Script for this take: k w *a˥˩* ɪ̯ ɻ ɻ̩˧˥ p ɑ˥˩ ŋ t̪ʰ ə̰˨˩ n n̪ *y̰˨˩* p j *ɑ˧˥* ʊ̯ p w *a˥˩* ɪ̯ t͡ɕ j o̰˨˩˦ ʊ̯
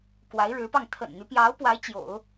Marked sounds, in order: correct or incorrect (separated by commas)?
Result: incorrect, incorrect, correct, incorrect